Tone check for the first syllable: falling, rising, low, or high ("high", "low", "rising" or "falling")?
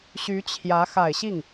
rising